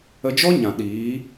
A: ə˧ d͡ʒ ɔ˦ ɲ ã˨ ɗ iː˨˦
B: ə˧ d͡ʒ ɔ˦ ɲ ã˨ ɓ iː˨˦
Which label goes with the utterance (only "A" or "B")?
A